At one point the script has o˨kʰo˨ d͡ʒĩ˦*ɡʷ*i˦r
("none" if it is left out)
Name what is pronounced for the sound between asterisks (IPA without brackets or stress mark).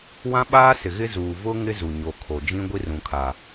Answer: ɡʷ